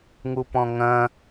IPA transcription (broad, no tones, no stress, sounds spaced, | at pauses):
ŋ u p ɔ̃ ŋ ɐ̃